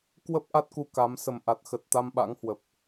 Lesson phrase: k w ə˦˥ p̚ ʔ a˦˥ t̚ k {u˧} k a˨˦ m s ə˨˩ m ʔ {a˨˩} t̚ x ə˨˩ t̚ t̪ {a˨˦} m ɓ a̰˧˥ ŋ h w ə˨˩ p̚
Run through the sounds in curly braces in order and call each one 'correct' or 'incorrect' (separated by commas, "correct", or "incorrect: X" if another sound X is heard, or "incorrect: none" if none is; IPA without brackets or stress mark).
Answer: correct, correct, incorrect: a˧